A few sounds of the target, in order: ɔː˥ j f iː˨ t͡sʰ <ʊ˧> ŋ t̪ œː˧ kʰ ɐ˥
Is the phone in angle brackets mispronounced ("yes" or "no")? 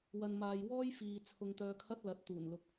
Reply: no